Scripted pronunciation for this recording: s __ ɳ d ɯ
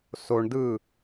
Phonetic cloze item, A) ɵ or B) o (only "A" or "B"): B